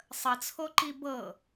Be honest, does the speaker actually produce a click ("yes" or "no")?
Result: yes